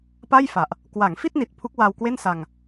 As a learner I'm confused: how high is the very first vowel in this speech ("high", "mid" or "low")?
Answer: low